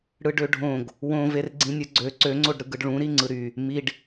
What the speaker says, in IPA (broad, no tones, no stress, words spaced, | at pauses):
ɽɯɖøɖʱõɡ | wõ verɡ͡ǀĩnʲɯɡ͡ǀø ǀøŋ͡ǀoɖɾɯɡ ɯɖɭũɾi ŋ͡ǀɯɾy | miɖ